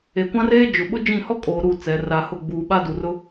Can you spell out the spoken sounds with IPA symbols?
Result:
e˨kʷã˦reː˦ d͡ʒʊ˨ ɓʊ˦ d͡ʒĩ˦˨ hɔ˦kʼoː˨ ɾu˦˨ t͡sɛ˨˦ ra˨hʊ˦˨ɡ͡buː˨ ɓa˦du˨r ʊ˦

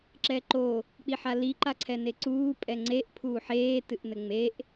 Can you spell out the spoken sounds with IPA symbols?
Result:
ǁɛǃo | k͡piħali ǃaǀʰɛneǀuː pʼɛŋ͡ǀeʔ pʰuːħeː tɨʔnɘŋ͡meʔ

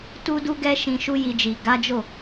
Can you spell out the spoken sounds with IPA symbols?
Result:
tu˧du˧ ɡɛ˦ ʃĩ˧ʃu˦ji˧d͡ʒi˨ ɡa˨˦d͡ʒo˦˨

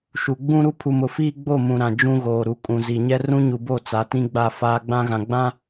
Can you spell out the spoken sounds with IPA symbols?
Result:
ʃu˨ ɡ͡bũ˦ɾu˦ pʰu˨mʊ˨fiː˦ ɡ͡bo˦˨mũ˨ ɾã˨d͡ʒũ˦ɣoː˨ɾu˨ kʼũ˨zi˨ɲɛ˦ rũ˦ɲu˨bo˦˨ t͡sa˨˦tĩ˦ɡ͡ba˦˨ faː˦ɡ͡bã˦ ɣã˨ɡ͡bã˦

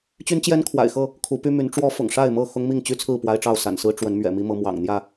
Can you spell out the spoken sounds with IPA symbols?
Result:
t͡ɕy˦nt͡ɕjɛ˦nkʰwa̰˨˩ɪ̯xɤ˥˨ | kʰu˨˦py˦my˨˦n ʈ͡ʂwɔ˦fʊ̰˨˩ŋ ʂa˥˨ɪ̯mɤ˥˨ xʊ˦ŋ mi˥˨ŋt͡ɕy˥˨t͡sʰɹ̩˥˨ pwa˦ɪ̯ʈ͡ʂɑ˥˨ʊ̯ sa̰˨˩nsɹ̩˦ ʈ͡ʂwə˨˦nmɥɛ̰˨˩mi˦mɤ˨˦ mwɑ̰˨˩ŋn̪jä˥˨

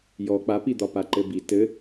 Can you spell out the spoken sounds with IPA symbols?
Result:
jɔ k͡papid̪ɒpa ǃɘbi tɘ

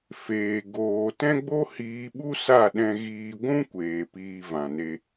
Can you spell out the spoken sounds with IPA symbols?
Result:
feː˨ ɡoː˨ tɛ̃˦ɡ͡bo˦hiː˧ ɓu˦sa˦˨ɗɛ̃˧ɣiː˧ ɡʷũ˦kʷeː˨ piː˧vã˨ne˧

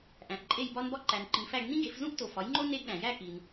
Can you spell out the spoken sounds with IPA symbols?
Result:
ʔæ̃˨ʔǃʼe˥˧jbɒ˥nbɒ˥ ǃæ˨nǃĩ˨fæ˥˧ɡ nĩ˥ɡe˩˥fzũ˥ʔ to˨fɒ˩˥jŋ͡ǃo˥ ne˥ɡɗæ̃˨ jæ˥˧ki˨n

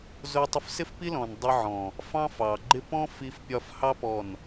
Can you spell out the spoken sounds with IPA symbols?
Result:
zʊ˧ tˤʊ˧fsɪ˦fpi˦lɔ̃˨n dˤi˧ʕɔ̃˨ | fɑ̃˦fɑ˨ɡ͡ǃɪ˦ pɔ̃˦ fi˧fpʲɒ˧fhɑ˦ pɔ˦˨n

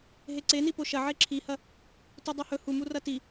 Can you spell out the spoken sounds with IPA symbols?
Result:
ɦeǀeni poʃɐ ʕeǁʰihɐ | tudˤohɵ humu rɐti

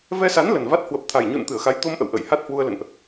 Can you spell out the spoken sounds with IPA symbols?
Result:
vɛ˧sa˨˦n lə˨˩nva˦˥t̚ hwə˨˩p̚t̪ʰa˨˩jɲṵ˧˨n t̪ɨ˧˩ə̯xa˨˦j t̪o˧mʔə̰˧˨w ʔə̰˧˨j ha˦˥t̚hwu˧ə̯lə̰˧˨nʔ

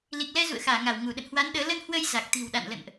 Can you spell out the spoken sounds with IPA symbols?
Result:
li˨˩k̚lɛ˧zṵ˧˨ə̯xaː˧˩ ŋa˧˩wŋu˧˩ɗə̰˧˨n hwa˨˦nɗəː˨˦ lə˧nhwə˧j za˨˩k̚t̪i̤˨˩wɗa̰˧˨nlə̰˧˨nʔ

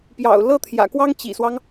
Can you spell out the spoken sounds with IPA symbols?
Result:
pjɑ̰˨˩ʊ̯ lɤ˥t̪ʰjä̰˨˩kwɑ˥ŋ t͡ɕḭ˨˩swɑ˦ŋ

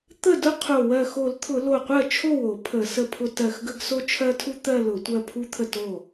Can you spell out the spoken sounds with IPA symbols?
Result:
t̪ə˥˩dʊ˥ qʰo˧˩ wɜ˧˩xo˧˩˧lt̪ʰʊ˧˩˧ lo˧˩qʷɜ˥˩t͡ʃʰo˥˩wo˧˩˧ pʰə˧˩˧sə˥˩pʰʊ˥ tɜ˧˩xɡə˥˧ɡso˥ t͡ʃʰɜ˥tʰu˥ t̪ɜ˥˧ lʊ˧˩˧tʷɜ˥˧pʰu˥ t̪ʰə˥˩to˥˩

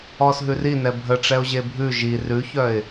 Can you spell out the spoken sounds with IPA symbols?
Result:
ɔsɦʉrinɛ bʱə ʈ͡ʂɛʊ̯ʑebʱʉ ʒi rʉçœɪ̯

